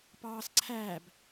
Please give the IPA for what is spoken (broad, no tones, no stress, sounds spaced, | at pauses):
p ɑː s ǀʰ æː b